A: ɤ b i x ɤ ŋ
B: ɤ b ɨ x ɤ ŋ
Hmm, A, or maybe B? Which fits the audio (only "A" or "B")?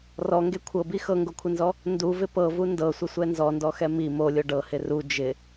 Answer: A